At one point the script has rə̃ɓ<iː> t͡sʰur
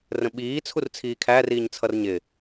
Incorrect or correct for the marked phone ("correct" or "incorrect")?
correct